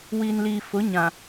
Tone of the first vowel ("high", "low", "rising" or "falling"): low